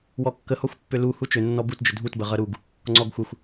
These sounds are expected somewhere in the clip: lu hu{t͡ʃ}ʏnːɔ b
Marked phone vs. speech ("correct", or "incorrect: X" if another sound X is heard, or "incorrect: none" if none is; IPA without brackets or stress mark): correct